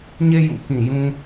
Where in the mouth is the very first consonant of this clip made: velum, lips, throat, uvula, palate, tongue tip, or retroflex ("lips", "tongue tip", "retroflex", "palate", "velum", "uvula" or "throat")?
palate